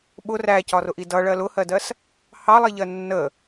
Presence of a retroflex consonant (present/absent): present